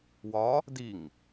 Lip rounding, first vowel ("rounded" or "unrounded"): rounded